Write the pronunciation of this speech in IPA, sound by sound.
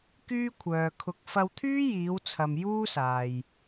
kyː˥kʷʰœː˨kʰʊ˧k̚ fɐ˧wt̪ʰyː˥jiː˨˧w t͡sʰɐ˧m juː˥saː˨j

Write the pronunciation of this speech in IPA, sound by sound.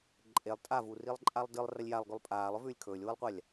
ǃʼelˠ tʼavurilˠ ǃʼalˠdɨlˠ rɐlʲjalˠɡʉlˠ pʼaːlˠɵvʉːlʲ kʰɵːlʲwɨlˠqʷalʲ

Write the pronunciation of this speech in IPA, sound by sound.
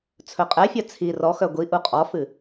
t͡sʰɵqʼɛfʲœ t͡sʰi rɔxœ ɡʷiʔu qʼɔfɨ

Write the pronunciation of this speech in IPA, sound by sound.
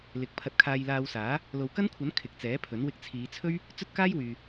lɪ˨˥k̚pʰɐ˧t̚kʰaː˧j laː˧wsaː˨˥ | lo˨wkɐ˥nkʷʰɐ˨˥n kʰɪ˨k̚t͡sɛː˨˥pʰɵ˨˥n wɪ˧k̚t͡sʰiː˨˧t͡sʰɵ˥ɥ | t͡sɵ˥t̚kaː˥jwyː˨

